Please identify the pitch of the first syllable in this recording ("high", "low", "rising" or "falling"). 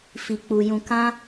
low